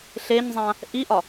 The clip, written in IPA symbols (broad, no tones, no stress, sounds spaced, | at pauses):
ɬ e ɲ zˤ ã | ʔ i ʔ ɒ